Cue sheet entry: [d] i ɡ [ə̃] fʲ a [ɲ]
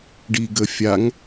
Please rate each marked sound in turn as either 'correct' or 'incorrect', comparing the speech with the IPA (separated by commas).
incorrect, incorrect, incorrect